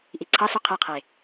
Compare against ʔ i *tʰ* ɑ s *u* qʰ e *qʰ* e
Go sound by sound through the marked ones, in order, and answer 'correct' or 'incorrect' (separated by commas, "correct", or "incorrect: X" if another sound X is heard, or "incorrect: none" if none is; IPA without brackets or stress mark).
incorrect: ǀʰ, correct, correct